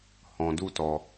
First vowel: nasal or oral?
nasal